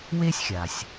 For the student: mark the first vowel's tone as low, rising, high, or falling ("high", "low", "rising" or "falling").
high